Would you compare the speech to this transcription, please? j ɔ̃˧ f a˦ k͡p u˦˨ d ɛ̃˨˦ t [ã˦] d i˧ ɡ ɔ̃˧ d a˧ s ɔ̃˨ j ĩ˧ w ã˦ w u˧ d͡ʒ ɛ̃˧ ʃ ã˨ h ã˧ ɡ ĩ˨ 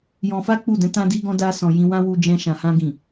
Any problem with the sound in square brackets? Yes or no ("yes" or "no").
yes